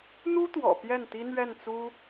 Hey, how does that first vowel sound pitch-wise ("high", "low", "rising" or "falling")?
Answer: high